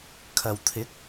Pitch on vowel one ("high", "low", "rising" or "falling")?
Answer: low